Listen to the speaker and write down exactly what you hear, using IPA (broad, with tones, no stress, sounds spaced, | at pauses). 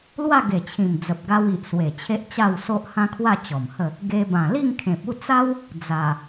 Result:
l w a˥˧ ɡ e˨˩ t͡ɕʰ ĩ˨˩ m d͡z ə˨ p̚ ɡ a˧ w i˨ ʔ s w e˨˩ t͡ɕʰ e˦ ʔ t͡ɕ a˥˧ w s o˦ ʔ h ã˦ kʰ w a˥˧ t͡ɕ ɔ˨˩ m h ə˥˧ | ɡ e˧ b ã˨˩ l i˥˧ ŋ kʰ ẽ˨ p̚ u˥˧ t͡s a˦ w | d͡z a˨˩